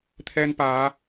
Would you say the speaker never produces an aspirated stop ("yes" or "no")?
no